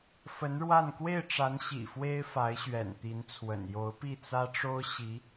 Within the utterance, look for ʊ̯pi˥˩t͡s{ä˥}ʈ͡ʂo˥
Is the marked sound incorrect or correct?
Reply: correct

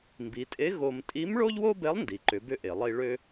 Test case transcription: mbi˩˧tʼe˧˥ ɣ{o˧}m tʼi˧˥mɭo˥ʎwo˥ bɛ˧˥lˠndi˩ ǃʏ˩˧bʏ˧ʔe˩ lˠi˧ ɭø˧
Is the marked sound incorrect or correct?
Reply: correct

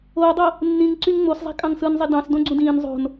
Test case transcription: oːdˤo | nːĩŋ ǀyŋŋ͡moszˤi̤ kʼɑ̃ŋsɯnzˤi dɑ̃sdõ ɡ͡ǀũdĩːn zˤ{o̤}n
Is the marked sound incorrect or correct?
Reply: correct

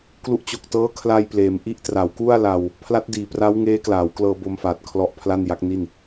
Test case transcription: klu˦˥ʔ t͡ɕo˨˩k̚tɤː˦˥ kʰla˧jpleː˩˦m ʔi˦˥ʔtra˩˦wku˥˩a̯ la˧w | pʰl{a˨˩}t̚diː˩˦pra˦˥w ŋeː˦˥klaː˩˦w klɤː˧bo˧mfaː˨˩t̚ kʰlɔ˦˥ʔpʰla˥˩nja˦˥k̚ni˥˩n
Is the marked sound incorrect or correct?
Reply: incorrect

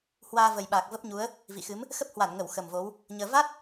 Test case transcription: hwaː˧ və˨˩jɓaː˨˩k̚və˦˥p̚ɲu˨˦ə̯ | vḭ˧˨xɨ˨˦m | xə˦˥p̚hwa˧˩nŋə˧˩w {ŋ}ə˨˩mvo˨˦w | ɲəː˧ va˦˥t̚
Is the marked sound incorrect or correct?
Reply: incorrect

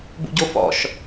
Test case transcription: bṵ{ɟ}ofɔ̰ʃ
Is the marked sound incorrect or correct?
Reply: correct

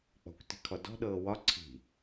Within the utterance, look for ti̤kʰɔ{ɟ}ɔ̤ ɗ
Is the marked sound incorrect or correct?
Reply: incorrect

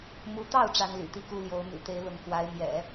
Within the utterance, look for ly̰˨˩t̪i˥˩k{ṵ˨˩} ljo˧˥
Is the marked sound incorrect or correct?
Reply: incorrect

